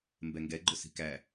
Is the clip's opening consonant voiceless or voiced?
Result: voiced